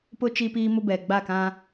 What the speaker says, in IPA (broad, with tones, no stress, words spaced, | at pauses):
pʊ˦ t͡ʃi˦piː˦mʊ˦bɛ˨ ɡ͡ba˦˨kã˦